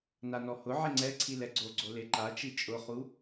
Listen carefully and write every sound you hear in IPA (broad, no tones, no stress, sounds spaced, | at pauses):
n a n ɔ h ʊ ʕ e ŋ͡ǀ ɛ ǀʰ i l ɛ ɡ͡ǀ o ɡ͡ǀ o l e ǃ a t͡ʃ i t͡ʃʼ ʊ χ u